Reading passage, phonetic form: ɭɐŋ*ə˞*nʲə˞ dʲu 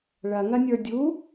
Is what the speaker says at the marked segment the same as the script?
no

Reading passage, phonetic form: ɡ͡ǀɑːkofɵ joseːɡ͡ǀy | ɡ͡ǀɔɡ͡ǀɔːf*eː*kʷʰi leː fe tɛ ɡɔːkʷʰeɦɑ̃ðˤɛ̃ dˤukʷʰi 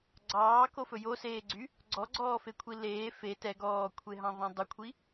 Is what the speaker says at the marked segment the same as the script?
no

